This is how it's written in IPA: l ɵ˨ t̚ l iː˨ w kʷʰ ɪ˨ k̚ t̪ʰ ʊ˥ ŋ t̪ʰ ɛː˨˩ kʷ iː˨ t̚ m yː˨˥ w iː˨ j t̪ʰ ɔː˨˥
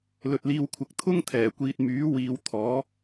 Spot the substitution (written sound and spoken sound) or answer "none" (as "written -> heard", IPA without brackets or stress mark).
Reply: j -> w